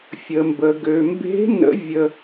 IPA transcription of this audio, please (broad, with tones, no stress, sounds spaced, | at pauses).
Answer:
fʲ ə˩ m b ə˩ ɡ ø˩ m b e̤˧˥ n ə̰˧˥ vʲ ə˧